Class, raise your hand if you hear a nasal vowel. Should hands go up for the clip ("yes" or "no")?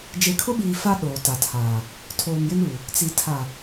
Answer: no